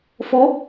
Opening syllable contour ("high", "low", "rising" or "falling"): rising